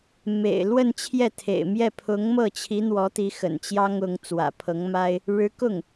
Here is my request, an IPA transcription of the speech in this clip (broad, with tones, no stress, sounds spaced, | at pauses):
m ḛ˨˩ ɪ̯ l w ə˥˧ n t͡ɕʰ j ɛ˥˩ t̪ʰ ḛ˨˩ ɪ̯ m j ɛ˥˩ pʰ ʊ˧˥ ŋ m ɤ˥˩ t͡ɕʰ i˧˥ n̪ w ɔ˧˥ t̪ i˧˥ x ə̰˨˩ n t͡ɕ j ɑ˥ ŋ ʊ˧˥ ŋ t͡s w ä̰˨˩ pʰ ɤ˧˥ ŋ m a˥ ɪ̯ | ɻ ɻ̩˧˥ k ʊ˥˩ ŋ